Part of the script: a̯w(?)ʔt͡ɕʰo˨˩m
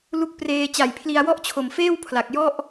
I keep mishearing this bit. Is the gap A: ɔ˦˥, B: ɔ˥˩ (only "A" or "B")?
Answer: B